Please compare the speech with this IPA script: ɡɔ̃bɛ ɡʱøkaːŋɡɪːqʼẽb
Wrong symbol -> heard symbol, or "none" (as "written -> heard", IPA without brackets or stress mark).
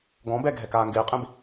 ø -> ɛ